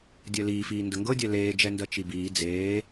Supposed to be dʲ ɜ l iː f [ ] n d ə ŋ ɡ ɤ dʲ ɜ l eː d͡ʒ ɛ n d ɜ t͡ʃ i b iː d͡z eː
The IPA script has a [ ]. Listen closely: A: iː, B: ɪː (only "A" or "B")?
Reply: A